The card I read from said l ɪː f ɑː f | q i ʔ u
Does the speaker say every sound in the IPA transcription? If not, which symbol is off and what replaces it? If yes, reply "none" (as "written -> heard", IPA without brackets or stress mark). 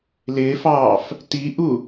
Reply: q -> t